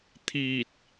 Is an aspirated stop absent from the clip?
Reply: no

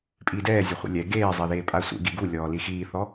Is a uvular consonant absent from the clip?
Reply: no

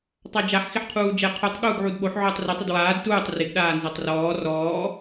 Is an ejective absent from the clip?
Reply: yes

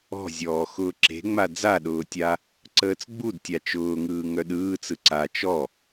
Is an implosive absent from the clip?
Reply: no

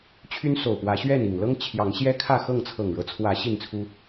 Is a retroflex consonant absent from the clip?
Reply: no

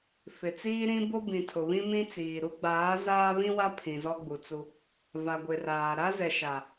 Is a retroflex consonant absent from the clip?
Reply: yes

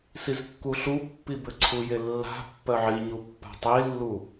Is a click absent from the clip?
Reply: no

